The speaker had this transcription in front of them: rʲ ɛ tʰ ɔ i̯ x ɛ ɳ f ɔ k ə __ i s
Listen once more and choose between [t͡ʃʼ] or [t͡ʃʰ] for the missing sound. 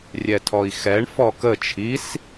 t͡ʃʰ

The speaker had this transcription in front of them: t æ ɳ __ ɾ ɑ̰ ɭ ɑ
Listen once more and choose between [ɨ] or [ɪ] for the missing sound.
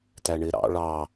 ɪ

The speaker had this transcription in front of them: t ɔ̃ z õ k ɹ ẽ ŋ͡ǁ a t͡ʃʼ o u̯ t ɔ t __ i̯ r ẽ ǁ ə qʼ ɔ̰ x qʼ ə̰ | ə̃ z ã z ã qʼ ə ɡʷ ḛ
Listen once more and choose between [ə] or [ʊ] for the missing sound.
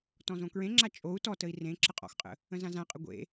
ə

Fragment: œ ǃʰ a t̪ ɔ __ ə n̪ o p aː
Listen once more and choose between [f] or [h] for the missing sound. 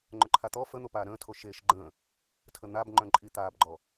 f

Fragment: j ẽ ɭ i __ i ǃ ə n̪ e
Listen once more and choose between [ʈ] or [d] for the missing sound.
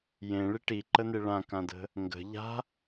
ʈ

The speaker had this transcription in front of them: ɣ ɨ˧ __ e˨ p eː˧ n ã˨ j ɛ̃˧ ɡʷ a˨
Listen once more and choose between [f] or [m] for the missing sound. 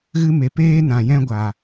m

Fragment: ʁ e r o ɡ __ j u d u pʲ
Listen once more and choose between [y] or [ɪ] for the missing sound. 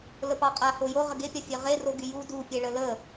y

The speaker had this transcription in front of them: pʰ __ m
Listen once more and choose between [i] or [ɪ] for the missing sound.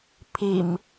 i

